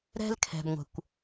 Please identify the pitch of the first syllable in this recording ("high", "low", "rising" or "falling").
high